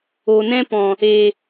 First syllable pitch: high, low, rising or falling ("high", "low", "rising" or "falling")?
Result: low